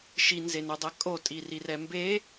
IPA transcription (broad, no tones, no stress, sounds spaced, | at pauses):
ʃ i n z e n o dˤ ɛ kʼ o tʼ i r i r ɛ m b e